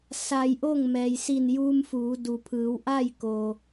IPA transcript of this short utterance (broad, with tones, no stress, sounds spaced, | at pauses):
s a˧ j ʔ o˥˨ ŋ m ɛː˩ j s i˧˩ n j uː˧ m f uː˩˧ d u˩ pʰ ɯː˩˧ w ʔ a˥˨ j k oː˩